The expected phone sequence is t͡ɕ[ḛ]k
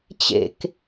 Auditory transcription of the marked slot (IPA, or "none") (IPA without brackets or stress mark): ḛ